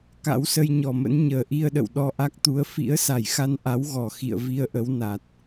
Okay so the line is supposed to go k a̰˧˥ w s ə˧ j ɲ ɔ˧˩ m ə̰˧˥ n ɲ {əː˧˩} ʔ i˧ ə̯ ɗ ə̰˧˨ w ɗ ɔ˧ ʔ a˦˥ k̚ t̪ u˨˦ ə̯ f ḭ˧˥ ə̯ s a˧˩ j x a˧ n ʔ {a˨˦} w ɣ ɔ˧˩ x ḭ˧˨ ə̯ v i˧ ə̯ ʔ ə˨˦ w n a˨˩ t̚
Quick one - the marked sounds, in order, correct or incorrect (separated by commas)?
correct, correct